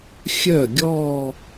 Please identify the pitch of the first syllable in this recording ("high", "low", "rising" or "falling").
falling